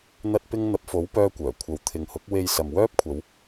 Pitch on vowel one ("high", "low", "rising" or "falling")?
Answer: high